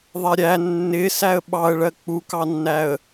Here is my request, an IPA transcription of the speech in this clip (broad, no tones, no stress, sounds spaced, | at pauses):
ðˤ ɛ ɾʲ æ nː ɪ s æ ə̯ ɓ ɑ ə̯ ɭ ɜ k͡p u k ɑ nː æ ə̯